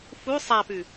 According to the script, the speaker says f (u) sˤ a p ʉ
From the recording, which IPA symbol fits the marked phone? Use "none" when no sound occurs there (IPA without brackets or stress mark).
u